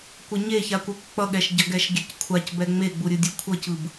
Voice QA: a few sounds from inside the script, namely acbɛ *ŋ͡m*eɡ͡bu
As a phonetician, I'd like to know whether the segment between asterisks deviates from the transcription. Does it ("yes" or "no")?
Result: no